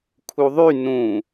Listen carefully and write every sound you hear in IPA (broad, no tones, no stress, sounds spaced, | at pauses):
kʰ u ðˤ y n ũ